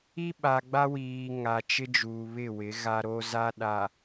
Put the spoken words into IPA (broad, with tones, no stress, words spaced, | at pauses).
i˦ɓa˨ɡ͡ba˦wiː˨ ŋa˨t͡ʃɪ˦ d͡ʒuː˨βɪ˦˨wɪ˨˦ ɣa˦ɾo˦ za˦ ɗa˨